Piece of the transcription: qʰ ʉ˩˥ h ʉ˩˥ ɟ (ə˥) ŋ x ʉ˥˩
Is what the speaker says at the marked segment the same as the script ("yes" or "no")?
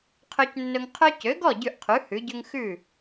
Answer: no